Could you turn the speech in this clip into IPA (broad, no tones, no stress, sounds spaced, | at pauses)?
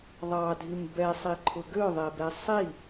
ðˤ ɑ dʱ i m b ɛ sˤ i ǃʰ ʊ ɡ ø ðˤ e b ɛ sˤ i